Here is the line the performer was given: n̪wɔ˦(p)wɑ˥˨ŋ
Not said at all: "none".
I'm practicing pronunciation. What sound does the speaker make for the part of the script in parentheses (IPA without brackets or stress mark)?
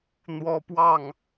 p